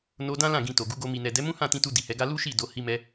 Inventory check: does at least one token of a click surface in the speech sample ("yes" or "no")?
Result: no